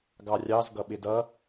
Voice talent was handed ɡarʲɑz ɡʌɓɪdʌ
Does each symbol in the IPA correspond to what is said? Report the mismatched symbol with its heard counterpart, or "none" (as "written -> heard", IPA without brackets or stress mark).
a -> ɑ